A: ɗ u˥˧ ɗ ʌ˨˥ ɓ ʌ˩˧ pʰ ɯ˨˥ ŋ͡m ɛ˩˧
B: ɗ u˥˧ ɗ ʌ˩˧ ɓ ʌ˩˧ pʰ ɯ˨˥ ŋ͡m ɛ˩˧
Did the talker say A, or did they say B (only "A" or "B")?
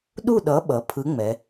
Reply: A